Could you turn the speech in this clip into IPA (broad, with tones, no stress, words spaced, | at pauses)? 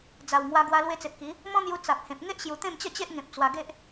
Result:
d͡za˨˩wŋwa˧ɡwa˧ lwe˧t͡se˨p̚ki˨˦ | mɔ̃˦n̪ju˧ t͡sa˨p̚hẽ˨p̚ ŋe˦ʔɕju˨˩ t̪ẽ˥˧mt͡ɕə˥˧t͡ɕe˦ʔ ŋẽ˨p̚ t͡swa˧ɡe˦ʔ